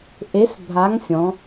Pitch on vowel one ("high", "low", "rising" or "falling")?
rising